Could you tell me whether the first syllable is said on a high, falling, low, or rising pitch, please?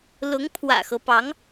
rising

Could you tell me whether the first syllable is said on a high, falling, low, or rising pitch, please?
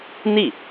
falling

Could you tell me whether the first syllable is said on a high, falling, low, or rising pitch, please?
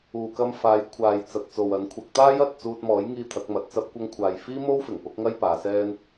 low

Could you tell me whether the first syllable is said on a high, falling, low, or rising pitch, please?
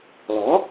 rising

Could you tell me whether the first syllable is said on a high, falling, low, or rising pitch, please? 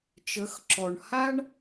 rising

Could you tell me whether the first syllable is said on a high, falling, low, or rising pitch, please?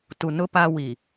low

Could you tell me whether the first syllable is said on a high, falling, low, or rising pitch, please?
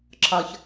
low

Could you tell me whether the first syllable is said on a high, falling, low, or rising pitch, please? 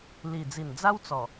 low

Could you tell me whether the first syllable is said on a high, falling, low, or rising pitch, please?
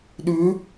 rising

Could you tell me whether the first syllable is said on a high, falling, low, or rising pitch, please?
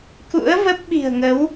rising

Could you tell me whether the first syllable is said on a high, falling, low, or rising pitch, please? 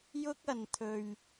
high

